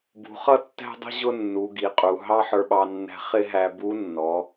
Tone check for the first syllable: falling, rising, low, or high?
low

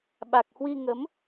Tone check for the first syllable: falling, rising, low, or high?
low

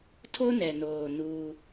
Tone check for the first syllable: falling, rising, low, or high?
high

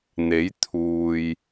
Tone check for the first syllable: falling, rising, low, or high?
rising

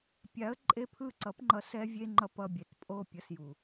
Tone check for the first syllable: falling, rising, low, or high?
rising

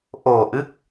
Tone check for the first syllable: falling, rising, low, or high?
low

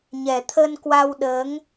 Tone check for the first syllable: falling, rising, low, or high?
low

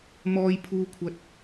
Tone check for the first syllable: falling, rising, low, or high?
high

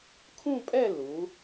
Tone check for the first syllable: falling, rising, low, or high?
falling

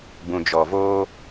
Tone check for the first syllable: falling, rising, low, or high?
low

